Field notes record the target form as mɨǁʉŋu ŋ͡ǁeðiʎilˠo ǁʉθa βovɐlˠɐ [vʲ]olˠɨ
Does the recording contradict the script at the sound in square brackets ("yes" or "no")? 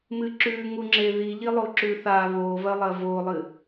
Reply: yes